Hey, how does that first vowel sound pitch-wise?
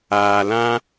low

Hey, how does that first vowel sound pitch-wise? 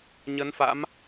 rising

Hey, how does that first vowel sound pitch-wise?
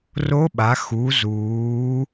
rising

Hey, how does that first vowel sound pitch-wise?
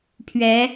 rising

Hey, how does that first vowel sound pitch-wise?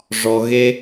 high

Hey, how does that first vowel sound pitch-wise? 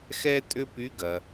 high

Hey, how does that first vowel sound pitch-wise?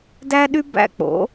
high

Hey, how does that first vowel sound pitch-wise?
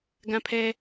high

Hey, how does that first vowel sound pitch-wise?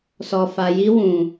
low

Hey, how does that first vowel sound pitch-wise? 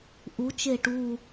rising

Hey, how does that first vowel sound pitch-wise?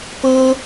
high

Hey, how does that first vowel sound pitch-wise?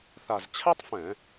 low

